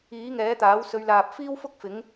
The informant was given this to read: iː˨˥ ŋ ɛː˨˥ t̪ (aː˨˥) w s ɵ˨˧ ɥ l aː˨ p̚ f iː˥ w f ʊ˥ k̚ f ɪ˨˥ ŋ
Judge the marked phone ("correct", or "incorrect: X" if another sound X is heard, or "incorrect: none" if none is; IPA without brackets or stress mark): correct